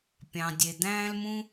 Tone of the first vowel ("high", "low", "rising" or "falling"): low